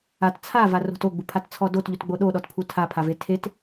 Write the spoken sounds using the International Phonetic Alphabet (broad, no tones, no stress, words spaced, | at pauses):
at t͡sʰavaro̤t oɡ͡bupʰatt͡sʰɔ dotʎutɡ͡bo ɗoɗɔtpʰu tʰapʰave tʰet